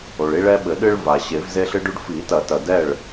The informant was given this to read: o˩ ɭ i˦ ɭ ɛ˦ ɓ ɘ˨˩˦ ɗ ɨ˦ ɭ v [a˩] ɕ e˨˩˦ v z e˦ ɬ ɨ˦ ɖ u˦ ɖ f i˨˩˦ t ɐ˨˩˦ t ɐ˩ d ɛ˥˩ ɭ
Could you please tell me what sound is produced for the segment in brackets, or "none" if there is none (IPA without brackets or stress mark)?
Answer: a˩